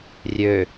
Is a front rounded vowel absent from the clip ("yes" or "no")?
no